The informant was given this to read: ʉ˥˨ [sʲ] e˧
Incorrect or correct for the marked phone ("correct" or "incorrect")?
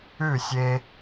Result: correct